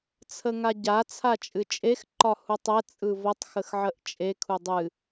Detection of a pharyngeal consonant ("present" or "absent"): present